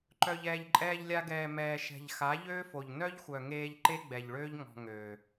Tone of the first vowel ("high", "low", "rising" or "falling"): low